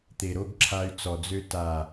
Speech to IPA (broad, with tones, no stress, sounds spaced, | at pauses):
t̪ e˨ ɾ o˧ ɡ ǁʰ a˧ y̯ t͡s ɔ˨ d͡z ø˧ t a˨